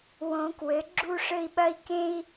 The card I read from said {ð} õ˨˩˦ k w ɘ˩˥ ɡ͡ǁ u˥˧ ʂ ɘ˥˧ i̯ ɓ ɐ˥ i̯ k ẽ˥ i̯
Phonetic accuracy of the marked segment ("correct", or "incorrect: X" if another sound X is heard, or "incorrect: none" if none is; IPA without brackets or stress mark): incorrect: w